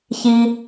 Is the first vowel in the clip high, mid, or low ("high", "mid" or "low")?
high